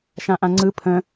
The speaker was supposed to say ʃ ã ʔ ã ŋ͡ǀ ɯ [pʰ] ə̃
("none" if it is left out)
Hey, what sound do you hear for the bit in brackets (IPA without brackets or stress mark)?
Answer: pʰ